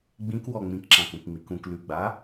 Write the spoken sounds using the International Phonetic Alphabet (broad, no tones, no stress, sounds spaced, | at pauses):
ɡ͡b ĩ k w ɔ ŋ͡m ĩ k ǁ ã k ũ k ŋ͡m i k ũ k l ʉ ɡ͡b a